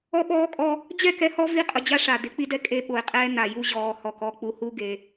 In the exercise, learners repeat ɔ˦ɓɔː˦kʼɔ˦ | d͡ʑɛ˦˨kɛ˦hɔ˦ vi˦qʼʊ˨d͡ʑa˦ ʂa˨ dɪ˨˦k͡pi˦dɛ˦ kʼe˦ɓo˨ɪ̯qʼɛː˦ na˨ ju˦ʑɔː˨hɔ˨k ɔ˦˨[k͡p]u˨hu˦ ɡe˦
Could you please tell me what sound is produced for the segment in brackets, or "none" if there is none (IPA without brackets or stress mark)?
k͡p